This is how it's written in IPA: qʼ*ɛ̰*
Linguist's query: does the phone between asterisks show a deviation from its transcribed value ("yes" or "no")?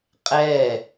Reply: yes